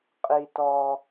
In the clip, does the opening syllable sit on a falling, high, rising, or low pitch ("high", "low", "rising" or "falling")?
low